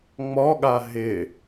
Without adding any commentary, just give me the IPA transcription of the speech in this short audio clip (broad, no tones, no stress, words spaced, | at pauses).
ŋ͡mɔɠa ɦɪ